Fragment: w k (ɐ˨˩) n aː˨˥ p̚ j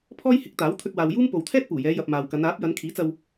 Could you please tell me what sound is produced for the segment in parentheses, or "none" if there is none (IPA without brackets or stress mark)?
ɐ˨˧